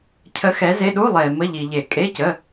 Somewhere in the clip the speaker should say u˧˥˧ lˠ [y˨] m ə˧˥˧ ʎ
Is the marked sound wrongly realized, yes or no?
yes